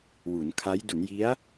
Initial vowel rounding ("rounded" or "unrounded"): rounded